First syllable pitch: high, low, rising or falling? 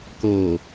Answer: low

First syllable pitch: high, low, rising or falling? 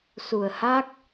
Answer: low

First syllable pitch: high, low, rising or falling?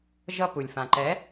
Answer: high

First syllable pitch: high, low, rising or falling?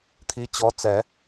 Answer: rising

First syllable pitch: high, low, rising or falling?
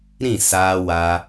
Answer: falling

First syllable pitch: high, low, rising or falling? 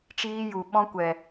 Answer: high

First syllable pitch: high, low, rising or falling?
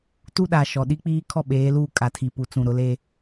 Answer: high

